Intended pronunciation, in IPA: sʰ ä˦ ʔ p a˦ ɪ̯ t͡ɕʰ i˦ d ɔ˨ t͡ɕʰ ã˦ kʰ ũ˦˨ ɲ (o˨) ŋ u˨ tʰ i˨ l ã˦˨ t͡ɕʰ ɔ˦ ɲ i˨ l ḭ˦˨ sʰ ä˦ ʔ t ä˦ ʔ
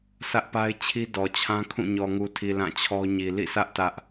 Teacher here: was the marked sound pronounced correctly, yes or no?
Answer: no